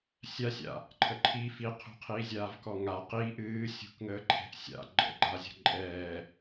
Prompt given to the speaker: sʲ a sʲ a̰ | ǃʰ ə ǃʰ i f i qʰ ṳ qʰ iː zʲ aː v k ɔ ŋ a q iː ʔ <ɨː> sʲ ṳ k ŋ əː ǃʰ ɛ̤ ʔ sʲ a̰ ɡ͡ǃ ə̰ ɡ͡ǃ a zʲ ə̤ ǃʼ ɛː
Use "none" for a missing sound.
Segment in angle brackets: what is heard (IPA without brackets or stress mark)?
ɨː